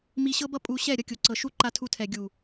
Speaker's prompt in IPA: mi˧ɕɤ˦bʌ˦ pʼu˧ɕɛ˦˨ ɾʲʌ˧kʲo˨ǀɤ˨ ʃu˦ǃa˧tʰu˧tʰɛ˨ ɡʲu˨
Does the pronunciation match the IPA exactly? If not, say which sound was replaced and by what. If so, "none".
none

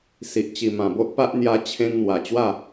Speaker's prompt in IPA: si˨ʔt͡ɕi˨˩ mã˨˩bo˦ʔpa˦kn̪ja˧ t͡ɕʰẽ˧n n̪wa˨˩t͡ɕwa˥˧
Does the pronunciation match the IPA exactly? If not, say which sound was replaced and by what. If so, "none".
k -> ʔ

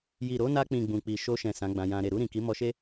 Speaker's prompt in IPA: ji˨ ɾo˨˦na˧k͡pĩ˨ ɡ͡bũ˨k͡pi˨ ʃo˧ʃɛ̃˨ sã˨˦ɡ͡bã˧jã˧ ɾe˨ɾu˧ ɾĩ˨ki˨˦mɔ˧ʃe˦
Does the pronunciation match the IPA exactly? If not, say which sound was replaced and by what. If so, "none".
none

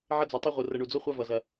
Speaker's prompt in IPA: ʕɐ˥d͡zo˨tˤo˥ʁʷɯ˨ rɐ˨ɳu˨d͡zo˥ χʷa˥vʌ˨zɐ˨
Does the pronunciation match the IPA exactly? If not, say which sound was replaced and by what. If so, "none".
none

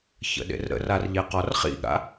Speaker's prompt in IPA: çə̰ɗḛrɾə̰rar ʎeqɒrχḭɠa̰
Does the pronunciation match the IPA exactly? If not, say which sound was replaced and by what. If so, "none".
none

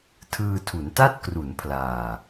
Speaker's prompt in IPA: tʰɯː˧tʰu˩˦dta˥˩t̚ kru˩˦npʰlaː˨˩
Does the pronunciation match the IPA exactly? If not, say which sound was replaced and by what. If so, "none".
d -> n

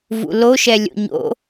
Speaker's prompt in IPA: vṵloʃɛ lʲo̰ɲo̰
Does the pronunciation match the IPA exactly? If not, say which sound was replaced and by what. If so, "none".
none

